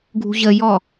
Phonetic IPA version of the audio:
ɡʱ ṳ ʑ ə j ɔ

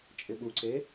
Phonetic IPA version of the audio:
t͡ʃʼ ɪ ɓ u ǀ e

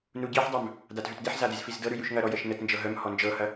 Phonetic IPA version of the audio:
n u ɟ i ħ dˤ œ m | d a t ɦ ʉ t d e ħ z a d e z f i z d ɤ ɾ ʉ j ʉ ʃ ŋ ɐ ɾ ɔ j ə ʃ n ə t n d͡ʒ ɤ ɦ œ m h ɔ n d͡ʒ ɤ h ɐ

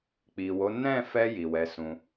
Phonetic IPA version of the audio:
k͡p i˨ w o˨˦ n ɛ̃˦˨ f ɛ˧ j i˨ w ɛ˨˦ s ũ˧

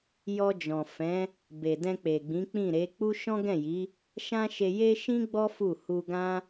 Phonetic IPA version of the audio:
j ɔ˧ d͡ʒ ɔ̃˨ f ɛ̃˨˦ | b e˨ d ɛ̃˧ k͡p e˨ ɡ͡b ĩ˨˦ k͡p ĩ˦˨ ɾ e˨˦ k͡p u˦ ʃ ɔ̃˦ ɡ ɛ̃˦˨ j i˨˦ | ʃ ã˦ ʃ e˧ j e˦ ʃ ĩ˦ ɡ͡b ɔ˦ f u˦˨ h u˧ ɡ ã˦

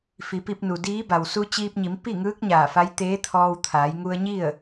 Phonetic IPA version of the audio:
f i˩˧ p i˧ p̚ n u˩ d iː˧˥ b a˩ w s u˧ t͡ɕ iː˧ p̚ ɲ i˩˧ m p i˥˨ ŋ ɯː˧˥ k̚ ɲ aː˧˩ f a˧˥ j t̪ eː˧˥ t̪ʰ ɔː˧ w t̪ʰ aː˩˧ j ŋ u˧ ə̯ ɲ i˥˨ ə̯

